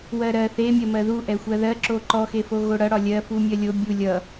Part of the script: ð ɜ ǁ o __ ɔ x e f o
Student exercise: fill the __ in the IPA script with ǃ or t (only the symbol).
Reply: ǃ